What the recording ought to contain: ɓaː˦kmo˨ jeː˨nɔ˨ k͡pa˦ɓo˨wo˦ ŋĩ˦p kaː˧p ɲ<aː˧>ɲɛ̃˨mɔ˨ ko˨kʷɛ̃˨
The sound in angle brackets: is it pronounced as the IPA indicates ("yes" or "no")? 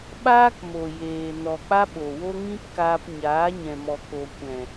no